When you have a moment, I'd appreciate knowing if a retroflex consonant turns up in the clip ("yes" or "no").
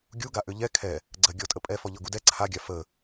no